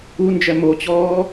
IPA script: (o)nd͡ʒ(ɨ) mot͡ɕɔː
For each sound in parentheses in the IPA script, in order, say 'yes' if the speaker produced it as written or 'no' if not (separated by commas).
no, no